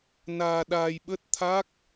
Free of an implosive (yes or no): no